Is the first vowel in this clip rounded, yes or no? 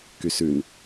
yes